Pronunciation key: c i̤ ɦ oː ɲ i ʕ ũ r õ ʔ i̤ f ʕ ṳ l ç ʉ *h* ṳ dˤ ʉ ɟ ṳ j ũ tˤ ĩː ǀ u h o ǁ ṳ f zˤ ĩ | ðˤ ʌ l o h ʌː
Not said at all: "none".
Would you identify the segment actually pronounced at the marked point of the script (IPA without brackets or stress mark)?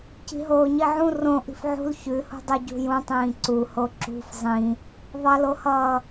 h